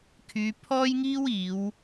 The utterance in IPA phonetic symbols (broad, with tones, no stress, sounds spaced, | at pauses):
kʰ yː˨˧ pʰ ɔː˥ j ŋ iː˥ w iː˨˧ w